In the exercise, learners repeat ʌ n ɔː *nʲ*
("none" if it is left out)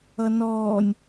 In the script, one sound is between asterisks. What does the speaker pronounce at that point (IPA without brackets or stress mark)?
nʲ